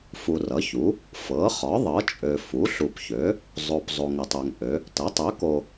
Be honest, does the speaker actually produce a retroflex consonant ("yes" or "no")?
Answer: no